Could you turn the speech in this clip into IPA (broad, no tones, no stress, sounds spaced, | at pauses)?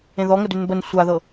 ẽ ð ɔ ŋ ə d ʉ n b ə n sʷ a ð ɤ